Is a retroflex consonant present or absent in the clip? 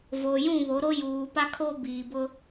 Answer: absent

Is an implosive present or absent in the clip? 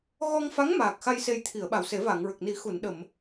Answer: present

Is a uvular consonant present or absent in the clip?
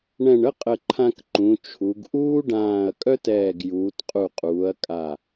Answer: present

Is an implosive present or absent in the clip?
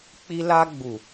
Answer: absent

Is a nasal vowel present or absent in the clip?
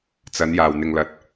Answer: absent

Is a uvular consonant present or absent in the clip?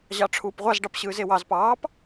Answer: present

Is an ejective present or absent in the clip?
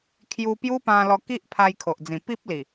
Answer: absent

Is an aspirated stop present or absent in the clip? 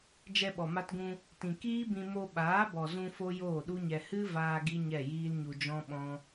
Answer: absent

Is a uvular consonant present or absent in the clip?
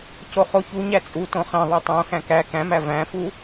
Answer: present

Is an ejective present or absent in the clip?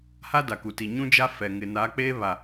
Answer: absent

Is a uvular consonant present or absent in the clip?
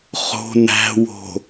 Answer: present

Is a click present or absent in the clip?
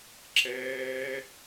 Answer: present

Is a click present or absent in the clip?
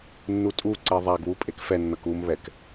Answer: present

